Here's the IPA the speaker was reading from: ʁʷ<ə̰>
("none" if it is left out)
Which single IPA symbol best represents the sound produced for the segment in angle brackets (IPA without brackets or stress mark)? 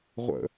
ə̰